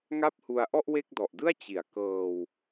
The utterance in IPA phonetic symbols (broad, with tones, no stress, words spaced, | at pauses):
ŋa˥˩p̚hu˧a̯ ʔɔ˥˩ʔwe˥˩k̚dɔ˨˩ʔdɯ˥˩a̯ t͡ɕi˩˦a̯kɤː˧w